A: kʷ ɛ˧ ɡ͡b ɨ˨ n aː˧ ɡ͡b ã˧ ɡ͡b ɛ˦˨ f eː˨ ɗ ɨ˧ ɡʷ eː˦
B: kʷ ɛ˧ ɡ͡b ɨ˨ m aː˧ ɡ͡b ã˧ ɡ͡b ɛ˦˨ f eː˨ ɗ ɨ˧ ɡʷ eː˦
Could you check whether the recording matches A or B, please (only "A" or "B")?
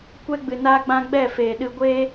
A